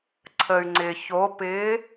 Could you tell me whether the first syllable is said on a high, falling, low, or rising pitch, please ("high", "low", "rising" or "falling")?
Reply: low